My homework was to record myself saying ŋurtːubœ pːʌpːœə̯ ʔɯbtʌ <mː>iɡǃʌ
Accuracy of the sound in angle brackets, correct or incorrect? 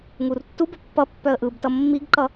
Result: correct